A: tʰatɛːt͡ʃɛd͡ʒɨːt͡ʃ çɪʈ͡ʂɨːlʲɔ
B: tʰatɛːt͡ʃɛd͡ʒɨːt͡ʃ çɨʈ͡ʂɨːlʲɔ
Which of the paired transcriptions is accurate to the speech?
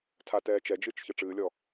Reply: B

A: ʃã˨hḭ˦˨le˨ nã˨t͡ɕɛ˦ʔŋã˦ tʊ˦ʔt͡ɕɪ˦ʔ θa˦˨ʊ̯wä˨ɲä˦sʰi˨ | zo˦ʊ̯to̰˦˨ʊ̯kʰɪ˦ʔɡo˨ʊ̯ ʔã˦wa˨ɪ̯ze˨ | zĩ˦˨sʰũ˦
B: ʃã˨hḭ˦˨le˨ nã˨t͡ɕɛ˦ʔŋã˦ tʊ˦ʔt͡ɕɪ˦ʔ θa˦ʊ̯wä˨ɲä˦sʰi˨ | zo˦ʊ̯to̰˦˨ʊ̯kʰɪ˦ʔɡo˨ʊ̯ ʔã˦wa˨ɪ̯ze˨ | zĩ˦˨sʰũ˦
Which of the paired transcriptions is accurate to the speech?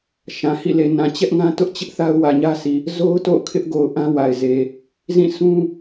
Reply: B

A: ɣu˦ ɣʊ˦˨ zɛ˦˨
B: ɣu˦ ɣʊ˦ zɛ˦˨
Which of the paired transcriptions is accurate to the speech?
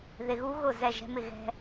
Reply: A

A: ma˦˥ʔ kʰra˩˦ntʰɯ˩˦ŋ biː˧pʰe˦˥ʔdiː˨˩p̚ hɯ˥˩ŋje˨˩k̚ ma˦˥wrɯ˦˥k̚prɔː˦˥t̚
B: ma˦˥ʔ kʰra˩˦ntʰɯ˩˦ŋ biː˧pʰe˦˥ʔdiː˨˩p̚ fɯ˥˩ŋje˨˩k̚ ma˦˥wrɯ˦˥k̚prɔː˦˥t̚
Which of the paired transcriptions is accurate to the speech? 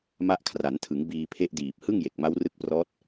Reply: A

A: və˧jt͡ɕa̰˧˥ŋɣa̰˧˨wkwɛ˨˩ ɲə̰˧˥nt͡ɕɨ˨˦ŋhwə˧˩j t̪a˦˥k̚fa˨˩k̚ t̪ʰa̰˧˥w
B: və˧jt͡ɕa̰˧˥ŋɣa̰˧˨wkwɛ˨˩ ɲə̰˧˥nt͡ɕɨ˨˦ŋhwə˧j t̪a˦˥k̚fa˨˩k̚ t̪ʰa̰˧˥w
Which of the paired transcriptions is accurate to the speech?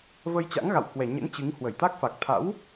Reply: A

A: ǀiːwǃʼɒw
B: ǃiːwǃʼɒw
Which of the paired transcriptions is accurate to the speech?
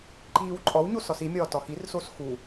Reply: B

